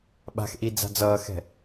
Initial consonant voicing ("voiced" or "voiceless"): voiced